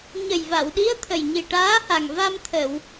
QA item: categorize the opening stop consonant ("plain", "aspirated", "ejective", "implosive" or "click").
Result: implosive